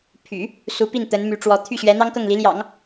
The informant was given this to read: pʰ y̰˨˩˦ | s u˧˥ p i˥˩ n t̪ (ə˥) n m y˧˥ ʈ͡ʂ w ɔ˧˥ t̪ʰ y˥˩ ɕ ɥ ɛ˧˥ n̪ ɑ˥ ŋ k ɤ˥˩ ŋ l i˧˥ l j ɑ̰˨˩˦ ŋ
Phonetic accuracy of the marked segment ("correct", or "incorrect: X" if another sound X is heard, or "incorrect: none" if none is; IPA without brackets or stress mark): incorrect: ə˧˥